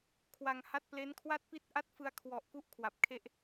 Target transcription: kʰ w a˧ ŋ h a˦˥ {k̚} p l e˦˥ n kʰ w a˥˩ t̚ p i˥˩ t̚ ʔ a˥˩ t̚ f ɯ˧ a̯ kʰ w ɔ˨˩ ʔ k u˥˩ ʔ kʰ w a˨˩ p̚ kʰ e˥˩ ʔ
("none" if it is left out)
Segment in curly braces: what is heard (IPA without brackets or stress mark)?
t̚